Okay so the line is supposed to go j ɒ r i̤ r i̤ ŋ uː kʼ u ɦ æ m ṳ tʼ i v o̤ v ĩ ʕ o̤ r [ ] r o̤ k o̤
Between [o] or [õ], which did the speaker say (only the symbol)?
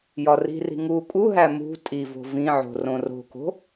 õ